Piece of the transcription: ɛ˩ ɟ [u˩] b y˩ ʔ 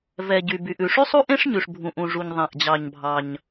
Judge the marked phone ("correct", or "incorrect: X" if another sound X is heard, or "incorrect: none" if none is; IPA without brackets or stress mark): incorrect: y˩